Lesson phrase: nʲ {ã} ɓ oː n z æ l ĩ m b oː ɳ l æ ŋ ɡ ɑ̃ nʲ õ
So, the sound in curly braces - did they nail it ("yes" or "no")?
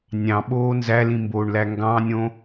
no